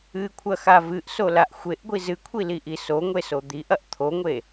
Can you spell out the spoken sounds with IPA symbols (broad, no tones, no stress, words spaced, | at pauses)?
ɨkʷʰɐxa vɨʔsolaʔ xʷeʔɡʷi zɨkʷʰiliʔi soŋʷeso d̪iʔɐʔ t̪ʰoŋʷe